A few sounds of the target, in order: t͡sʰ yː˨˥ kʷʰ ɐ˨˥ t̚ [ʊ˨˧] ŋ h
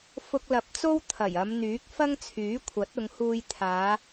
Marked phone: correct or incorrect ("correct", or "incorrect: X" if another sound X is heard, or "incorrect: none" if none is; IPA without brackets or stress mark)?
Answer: correct